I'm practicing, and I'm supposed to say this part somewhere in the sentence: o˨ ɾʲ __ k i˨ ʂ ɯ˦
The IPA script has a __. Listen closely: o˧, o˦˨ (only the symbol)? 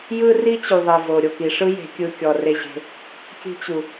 o˦˨